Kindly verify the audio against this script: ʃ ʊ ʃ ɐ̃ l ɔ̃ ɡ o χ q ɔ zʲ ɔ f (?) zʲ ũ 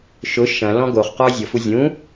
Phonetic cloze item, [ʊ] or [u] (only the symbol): u